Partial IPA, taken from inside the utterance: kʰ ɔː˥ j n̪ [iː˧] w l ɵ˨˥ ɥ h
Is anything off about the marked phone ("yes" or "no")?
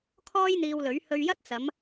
no